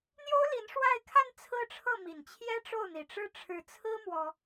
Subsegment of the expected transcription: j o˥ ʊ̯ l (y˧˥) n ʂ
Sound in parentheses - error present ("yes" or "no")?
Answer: yes